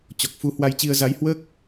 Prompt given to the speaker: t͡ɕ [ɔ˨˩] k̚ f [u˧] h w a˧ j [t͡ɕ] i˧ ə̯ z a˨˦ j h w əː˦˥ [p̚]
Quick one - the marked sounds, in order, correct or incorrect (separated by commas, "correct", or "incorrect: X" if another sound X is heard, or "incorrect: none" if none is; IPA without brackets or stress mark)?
correct, correct, correct, incorrect: k̚